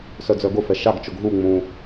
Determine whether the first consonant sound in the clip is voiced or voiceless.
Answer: voiceless